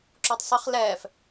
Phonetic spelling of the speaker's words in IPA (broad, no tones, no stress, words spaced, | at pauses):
ǁotˤsˤəχ lɛːf